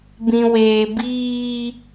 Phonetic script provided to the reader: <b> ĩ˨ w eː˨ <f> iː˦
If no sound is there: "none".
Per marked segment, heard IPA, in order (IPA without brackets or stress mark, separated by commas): b, b